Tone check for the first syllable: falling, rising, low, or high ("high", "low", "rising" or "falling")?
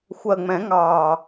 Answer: low